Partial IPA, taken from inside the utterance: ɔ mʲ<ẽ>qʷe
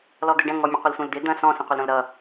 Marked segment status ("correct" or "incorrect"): correct